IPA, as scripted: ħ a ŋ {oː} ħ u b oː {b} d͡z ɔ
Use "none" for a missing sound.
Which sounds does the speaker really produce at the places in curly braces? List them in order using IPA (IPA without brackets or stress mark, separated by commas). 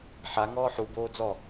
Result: ɔː, none